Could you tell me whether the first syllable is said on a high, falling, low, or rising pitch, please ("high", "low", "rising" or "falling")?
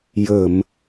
low